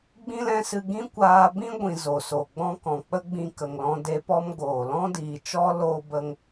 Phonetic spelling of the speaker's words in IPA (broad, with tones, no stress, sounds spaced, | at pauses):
ɡ͡b ĩ˦ l ɛ̃˦ s ɨ˧ ɡ ĩ˦ kʷ aː˧ b ĩ˦ ɡʷ ĩ˨ z o˨ s o˨ ɡ͡b ɔ̃˧ k ɔ̃˨ k͡p ə˦ ɡ͡b ĩ˧ k ə˨ ŋ l ɔ̃˧ d e˧ p ɔ˦ m ɡ oː˨ l ɔ̃˦ d iː˨ t͡ʃ ɔ˦ l oː˦ b ə˦ ŋ